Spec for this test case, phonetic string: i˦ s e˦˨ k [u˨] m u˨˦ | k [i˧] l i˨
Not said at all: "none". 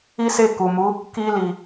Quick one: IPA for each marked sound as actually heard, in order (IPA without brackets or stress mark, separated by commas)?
u˨, i˧